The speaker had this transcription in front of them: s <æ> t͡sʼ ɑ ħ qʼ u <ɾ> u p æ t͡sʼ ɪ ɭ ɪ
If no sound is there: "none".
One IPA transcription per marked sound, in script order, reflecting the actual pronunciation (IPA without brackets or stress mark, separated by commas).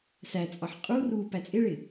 æ, r